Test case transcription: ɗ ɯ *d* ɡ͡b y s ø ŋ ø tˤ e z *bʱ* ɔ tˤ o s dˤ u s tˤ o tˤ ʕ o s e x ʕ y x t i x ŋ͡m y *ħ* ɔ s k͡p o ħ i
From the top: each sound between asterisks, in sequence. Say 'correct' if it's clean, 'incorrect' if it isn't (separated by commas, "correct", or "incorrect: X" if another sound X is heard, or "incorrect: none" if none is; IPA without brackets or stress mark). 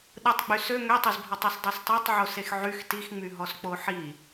incorrect: tˤ, correct, incorrect: ɦ